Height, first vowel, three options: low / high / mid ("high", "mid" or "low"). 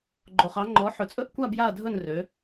mid